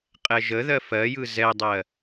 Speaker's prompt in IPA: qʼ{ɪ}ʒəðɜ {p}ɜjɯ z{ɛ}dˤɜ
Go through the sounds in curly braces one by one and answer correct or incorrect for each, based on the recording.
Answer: incorrect, incorrect, correct

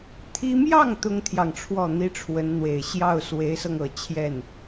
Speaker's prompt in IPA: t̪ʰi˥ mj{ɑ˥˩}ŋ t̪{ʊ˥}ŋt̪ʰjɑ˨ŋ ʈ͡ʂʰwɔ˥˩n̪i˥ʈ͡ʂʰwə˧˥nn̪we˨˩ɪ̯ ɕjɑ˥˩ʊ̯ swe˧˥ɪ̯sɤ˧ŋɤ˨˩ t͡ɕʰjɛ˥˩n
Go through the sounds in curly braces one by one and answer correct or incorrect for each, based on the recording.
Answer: correct, correct

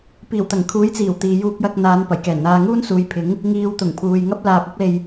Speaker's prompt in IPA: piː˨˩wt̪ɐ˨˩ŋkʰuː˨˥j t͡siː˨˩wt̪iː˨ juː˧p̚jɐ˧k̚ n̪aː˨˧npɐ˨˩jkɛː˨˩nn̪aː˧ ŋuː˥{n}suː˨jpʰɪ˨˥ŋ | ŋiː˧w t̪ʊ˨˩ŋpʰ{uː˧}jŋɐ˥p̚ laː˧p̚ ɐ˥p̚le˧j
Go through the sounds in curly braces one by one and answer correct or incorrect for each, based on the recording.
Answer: correct, incorrect

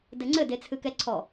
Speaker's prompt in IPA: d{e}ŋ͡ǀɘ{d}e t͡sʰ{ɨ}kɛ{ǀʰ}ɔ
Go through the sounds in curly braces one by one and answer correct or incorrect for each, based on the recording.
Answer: incorrect, correct, correct, correct

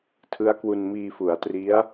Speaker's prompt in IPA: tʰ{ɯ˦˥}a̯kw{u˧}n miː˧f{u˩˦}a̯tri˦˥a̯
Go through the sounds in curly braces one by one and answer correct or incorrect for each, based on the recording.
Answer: correct, correct, correct

